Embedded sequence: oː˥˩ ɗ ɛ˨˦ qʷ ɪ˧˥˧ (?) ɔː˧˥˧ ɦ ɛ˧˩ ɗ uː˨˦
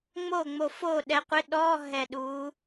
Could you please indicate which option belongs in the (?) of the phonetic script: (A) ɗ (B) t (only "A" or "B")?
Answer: A